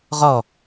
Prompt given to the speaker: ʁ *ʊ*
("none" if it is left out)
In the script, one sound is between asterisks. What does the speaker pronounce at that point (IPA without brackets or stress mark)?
ɔ